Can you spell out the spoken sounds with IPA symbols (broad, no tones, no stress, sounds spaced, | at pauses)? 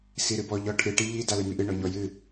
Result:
s i ɾ ɨ b ɔ ʎ ɔ ʈʰ ɨ ʈ i ʎ i d a l e m i ʔ ɨ ɳ ɔ ɲ ɔ j ɨ